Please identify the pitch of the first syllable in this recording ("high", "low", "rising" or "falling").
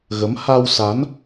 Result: rising